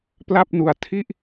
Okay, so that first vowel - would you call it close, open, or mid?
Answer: open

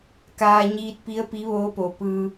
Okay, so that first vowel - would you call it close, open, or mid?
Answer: open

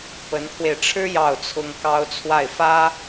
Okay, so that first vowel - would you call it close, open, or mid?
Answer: mid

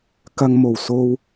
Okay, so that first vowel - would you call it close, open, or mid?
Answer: open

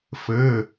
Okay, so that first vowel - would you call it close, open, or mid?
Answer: mid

